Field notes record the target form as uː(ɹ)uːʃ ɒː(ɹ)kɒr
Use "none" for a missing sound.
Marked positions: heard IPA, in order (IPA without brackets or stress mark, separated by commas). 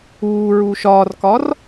ɹ, r